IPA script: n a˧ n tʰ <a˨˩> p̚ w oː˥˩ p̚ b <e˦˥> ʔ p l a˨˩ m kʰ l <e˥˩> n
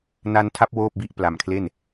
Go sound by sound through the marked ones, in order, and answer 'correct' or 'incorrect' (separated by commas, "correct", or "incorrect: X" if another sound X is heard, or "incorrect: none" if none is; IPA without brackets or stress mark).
incorrect: a˦˥, incorrect: i˦˥, correct